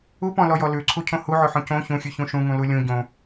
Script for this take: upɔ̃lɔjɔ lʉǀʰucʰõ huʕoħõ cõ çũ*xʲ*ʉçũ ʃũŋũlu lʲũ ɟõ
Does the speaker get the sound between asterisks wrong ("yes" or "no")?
no